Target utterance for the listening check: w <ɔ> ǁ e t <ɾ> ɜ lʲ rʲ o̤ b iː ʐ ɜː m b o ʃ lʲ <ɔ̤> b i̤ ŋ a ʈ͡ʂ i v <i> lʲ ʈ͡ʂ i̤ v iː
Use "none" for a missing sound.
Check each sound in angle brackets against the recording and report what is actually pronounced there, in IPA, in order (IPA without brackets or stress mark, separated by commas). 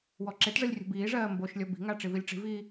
ɔ, ʐ, ɔ, i